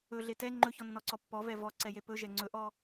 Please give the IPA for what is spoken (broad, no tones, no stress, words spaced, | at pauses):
ɵɮe tɛ ŋ͡ǃɵçɔnːɔǀɔ pːɔvɛ vɔǀɛje pɵʒɛ ŋ͡ǀɵʔɔ